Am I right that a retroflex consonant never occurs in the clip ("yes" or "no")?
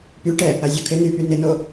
no